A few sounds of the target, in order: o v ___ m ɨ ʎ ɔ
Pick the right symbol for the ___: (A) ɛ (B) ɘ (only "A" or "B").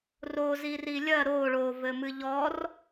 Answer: B